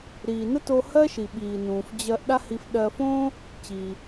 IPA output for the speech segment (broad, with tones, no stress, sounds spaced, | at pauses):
ɾ iː˩ n ə˥ t o˧ h ɜ˥ ʃ i˩ ɓ iː˩ n ũː˩ f d͡ʑ ɜ˧ ʔ ɗ a˥ h i˧ f ɗ ɜ˧ f õ˥ | t͡ɕ iː˩